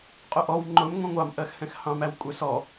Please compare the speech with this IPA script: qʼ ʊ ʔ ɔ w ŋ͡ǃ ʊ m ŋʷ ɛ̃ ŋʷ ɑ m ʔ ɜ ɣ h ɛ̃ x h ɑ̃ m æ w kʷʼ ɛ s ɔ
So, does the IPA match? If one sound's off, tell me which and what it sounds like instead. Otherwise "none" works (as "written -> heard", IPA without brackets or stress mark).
ɣ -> x